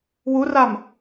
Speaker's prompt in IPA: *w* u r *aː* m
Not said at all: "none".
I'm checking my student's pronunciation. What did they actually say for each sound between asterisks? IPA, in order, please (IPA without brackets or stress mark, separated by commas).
w, a